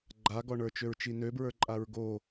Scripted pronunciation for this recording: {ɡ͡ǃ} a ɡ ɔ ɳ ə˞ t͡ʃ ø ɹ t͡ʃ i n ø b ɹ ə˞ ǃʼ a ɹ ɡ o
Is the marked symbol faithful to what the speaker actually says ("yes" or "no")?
yes